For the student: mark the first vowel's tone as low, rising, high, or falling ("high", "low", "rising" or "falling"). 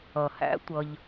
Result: low